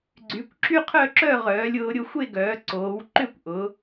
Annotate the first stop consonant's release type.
click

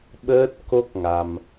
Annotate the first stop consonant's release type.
implosive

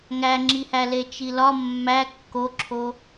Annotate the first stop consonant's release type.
click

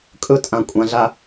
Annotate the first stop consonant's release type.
ejective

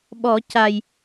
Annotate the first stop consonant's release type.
implosive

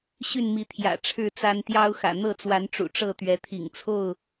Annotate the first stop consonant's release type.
aspirated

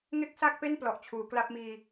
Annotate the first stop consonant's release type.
plain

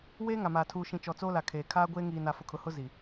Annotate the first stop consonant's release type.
aspirated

